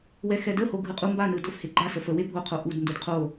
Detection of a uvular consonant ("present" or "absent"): present